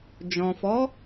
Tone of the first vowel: low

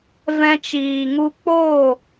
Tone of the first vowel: high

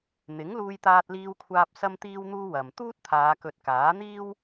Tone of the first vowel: rising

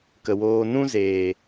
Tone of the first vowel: low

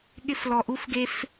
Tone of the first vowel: high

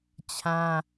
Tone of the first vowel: high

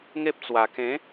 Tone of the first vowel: high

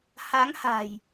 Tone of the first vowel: rising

